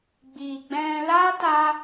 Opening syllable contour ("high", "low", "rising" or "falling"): low